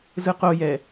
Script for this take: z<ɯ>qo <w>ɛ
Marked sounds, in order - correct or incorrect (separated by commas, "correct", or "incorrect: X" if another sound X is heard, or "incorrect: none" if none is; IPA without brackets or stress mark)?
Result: correct, incorrect: j